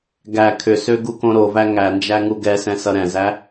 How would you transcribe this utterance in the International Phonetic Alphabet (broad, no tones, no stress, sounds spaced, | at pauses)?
ɡ æ kʰ ʏ s ø ɡ u k õ ɾ o v æ ŋ æ n d͡ʒ æ ŋ u ɡ ɛ s ɛ̃ s ʌ ɾ ɛ̃ z æ